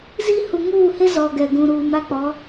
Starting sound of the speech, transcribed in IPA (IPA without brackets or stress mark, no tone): z